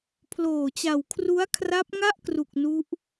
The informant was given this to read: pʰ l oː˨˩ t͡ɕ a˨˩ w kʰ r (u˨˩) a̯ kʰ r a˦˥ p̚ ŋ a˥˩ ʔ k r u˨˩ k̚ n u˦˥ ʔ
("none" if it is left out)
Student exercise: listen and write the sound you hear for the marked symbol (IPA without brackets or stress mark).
u˦˥